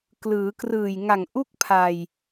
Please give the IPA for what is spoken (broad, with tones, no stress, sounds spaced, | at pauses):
k l ɯː˩˦ k r ɯː˨˩ j ŋ a˨˩ ŋ ʔ u˥˩ k̚ pʰ a˧ j